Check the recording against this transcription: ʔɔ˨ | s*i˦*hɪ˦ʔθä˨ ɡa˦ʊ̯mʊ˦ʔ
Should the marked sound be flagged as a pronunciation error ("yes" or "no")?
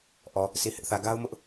yes